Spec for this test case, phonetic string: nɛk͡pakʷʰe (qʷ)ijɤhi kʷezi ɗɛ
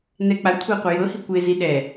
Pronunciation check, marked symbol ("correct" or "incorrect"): correct